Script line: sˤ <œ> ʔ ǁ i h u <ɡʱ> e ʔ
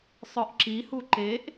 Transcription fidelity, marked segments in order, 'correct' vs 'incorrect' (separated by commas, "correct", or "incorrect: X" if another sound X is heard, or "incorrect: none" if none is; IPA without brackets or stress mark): correct, incorrect: ǃ